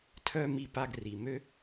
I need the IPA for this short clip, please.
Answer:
tʰ œ˥ m i˧ p a˧ ɡ r i˩ m ø˥

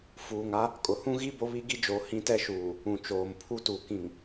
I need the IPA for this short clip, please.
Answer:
f uː˨ ŋ a˦ | kʼ ʊ˨ h ũ˦ ɣ i˦ b o˦ β i˦ ɡ i˦ d͡ʒ o˨˦ h ĩ˦ t ɛ˦ ʃ uː˨ | ũ˨ t͡ʃ oː˨ m pʰ u˦ t u˨ k ĩ˨ ŋ

